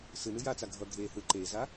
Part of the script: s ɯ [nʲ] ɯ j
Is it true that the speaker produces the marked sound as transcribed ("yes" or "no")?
no